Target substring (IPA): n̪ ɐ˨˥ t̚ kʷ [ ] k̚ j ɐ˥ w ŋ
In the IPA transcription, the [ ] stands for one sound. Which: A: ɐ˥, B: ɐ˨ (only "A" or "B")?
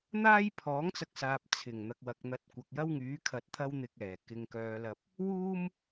B